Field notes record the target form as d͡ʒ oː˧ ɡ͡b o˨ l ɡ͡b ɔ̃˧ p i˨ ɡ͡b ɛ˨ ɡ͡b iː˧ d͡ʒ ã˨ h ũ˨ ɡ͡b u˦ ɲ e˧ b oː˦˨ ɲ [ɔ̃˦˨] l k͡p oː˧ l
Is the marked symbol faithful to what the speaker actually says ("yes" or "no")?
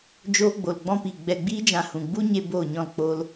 yes